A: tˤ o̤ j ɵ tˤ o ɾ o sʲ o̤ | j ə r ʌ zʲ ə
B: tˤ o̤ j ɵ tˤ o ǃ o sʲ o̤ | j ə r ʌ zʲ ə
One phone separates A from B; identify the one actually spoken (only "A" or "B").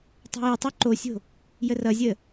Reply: B